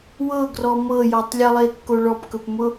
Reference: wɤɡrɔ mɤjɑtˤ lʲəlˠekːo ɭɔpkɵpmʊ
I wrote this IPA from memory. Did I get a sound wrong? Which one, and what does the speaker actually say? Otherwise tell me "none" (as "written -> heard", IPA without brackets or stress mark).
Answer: ɑ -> ɔ